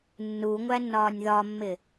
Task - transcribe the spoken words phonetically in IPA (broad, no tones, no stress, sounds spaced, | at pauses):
nː u ŋʷ æ nː ɒː nʲ ð ɒ mː ɪ